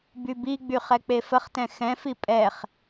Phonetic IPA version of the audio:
bybiɡ͡by χɛk͡pefəχtɛ̃ xɛ̃fi pʼɛχ

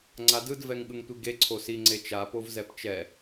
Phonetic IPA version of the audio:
ŋ͡ǀadɯd vɛŋɠɯŋtʷiɡe ǀʰosi ŋ͡ǀet͡ʃa povzɛpt͡ʃɛ

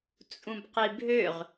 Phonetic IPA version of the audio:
t͡sʼũbqibʱøʁ

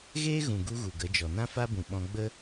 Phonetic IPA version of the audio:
ɣeː˦ɣũ˨ɡu˧ ɣu˨ɡə˨˦d͡ʒɔ˨ nã˦fa˦bũ˨ ɓɔ̃˧ɡ͡bə˦

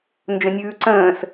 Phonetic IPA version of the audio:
nd͡ʒə̃nʲʉːǀə̃ːs

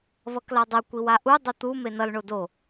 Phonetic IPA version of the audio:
βʌkladˤɛ kʷiwaʔu dˤot̪u menʌl ɳodo

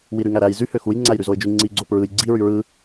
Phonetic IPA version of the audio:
wiɾyŋæɾæj zy høxuj ŋ͡ǀæjɾyzoɪ̯d͡ʒy ŋ͡ǀi ɡ͡ǀopɹɯj ɡ͡ǀi ɹyɹɯ

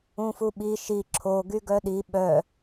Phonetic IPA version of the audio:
ũfuɓi ʃi ǁʰo ɡyɡœɗi ɓœ

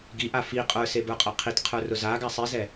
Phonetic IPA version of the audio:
ɡiʔa fi qʼə˞sebə˞qʼɐ qʰitqʰə˞rʊ zaɡa sˤizɛ

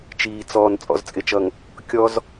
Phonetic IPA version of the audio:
t͡ʃiː˨ t͡sɔː˨n t͡sʼɔ̰˨zt͡sʼɪ˨t͡ʃʌ˨ŋ | kʲɔ˦z

